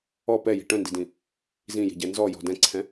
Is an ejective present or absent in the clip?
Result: absent